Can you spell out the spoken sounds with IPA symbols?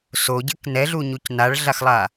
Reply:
soɟɘk nɛɮuɲuc naɭɮaxlˠa

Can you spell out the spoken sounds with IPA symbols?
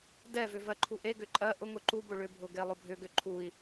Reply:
dɛvʏ vɜǃʰuʔeɡʏ ǃʼɜ ʔʊŋʊ ǃubʊ ɭʏbʱʊ ɡelˠʊbʱʏɡʏ ǃʰui̯

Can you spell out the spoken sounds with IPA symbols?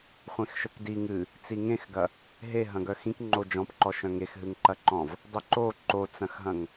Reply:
χʷẽxʃœkdi ŋɨ | t͡siŋẽxɡɐ | ɦe ɦɐ̃ɡœxĩk ŋ͡ǃod͡ʒɔ̃pǃɔʃœ̃ ŋexɦɨŋǃɐǃɔ̃v | dˤiǃo ǃot͡sɐ̃xɦɐ̃ŋ

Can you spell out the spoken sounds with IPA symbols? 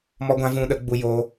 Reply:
mɔ˧ɡʷã˧ vũ˧ɗə˨˦ ɡ͡bu˧joː˧

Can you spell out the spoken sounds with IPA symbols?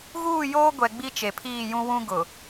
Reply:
ɣuː˦˨joː˦ɡʷɛ˨ ɡ͡bi˦t͡ʃe˨pʰiː˦˨jũ˦ wũ˦ɡʊ˨

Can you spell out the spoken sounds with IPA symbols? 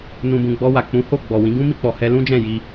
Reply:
nũ˨bũ˨ɡ͡bɔ˧wa˨ k͡pũ˨˦ ho˦˨ɡ͡bɔ˨wĩ˨˦ ɡũ˦mi˦˨k͡pɔ˨ hɛ˧lũ˦d͡ʒɛ̃˦˨ji˧

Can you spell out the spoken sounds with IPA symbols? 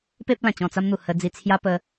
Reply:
pe˦p̚ lã˨˩t͡ɕɔ̃˧t͡sa˦mn̪u˨˩ hə˧d͡zi˧ t͡sʰja˦pə˧

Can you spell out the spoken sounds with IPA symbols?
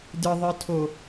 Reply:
dɨðˤɨtʰo

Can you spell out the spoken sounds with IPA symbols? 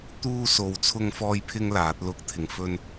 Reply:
t̪uː˥so˧w t͡sʰʊ˥ŋfɔː˥jpʰɪ˥ŋlaː˨˥t̚ lʊ˥k̚t̪ʰɪ˧ŋfɵ˥n

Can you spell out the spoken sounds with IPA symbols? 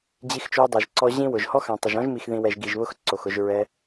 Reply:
d͡ʑi˧xt͡ʃo˧dˤa˨ʒǀɔ˧ ʑĩ˦wʊ˨ʒ hɔ˦xã˨tˤɪ˨ʒ ɔ̃˦ʒmi˨xðĩ˨wɛ˨ʒ ɡi˨ʒβʊ˦x ǀo˨xʊ˧ʒ ɹɛ˧

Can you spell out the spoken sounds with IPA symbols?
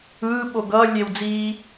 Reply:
ɯːɓo ɡʌːlʲewd͡ziː

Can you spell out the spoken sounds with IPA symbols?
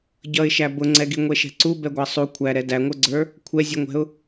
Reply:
ɟʌɪ̯ʃæ bʊŋ͡ǀɛɡi ŋʷɛʃɛ̤ǀu bɛɡʷæsˤu kʷʰæɾɛ dæŋʷə˞ɡ͡ǀə˞ | kʷʰɛzʲuŋʷɛ̤ʊ̯

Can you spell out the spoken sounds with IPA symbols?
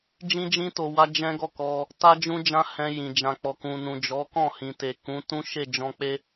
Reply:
d͡ʒĩ˦d͡ʒĩ˦to˧ wa˦d͡ʒɛ̃˦ɡɔ˦˨kɔ˧ | ta˦ d͡ʒũ˦ d͡ʒã˦hɛ̃˧ jĩ˨d͡ʒã˨ k͡pɔ˨kũ˨nũ˨ d͡ʒɔ˨˦kɔ̃˦˨hĩ˨ te˨ kũ˨˦tũ˦ ʃe˦˨d͡ʒɔ̃˧k͡pe˦

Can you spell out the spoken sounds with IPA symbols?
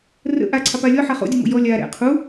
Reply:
rə̰ ʔaǀʰɑpa lʲɔħa χo̰dʲumo̰ jɔ lʲaɾɛ̰ qʰu

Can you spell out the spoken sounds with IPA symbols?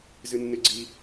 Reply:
zɨnːɨɡ͡ǀi

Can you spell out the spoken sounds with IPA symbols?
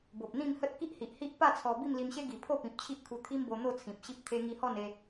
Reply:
bo˨p̚ n̪ĩ˥˧mhə˦t̚ ki˦ʔhi˨ʔhi˦ʔpa˥˧ t͡sʰɔ˧ bi˥˧mli˧mɕe˦ɡi˨˩ pʰo˥˧pĩ˨p̚t͡ɕʰi˦ʔkʰu˧ t̪ʰi˦mbo˧n̪o˥˧ t͡sʰĩ˨p̚ɕi˦p̚t̪ʰe˦ ŋi˧hɔ˥˧ne˧

